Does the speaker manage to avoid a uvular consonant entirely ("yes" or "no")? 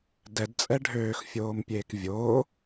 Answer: yes